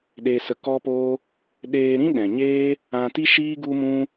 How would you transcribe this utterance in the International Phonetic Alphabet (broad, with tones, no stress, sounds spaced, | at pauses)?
ɗ e˧ s ə˧ k ɔ˦ p oː˦ | ɗ eː˧ ɾ ĩ˦ ɗ ɛ̃˨ ɲ eː˦ | ã˧ t i˦ ʃ iː˦ ɡ u˦ m ũ˦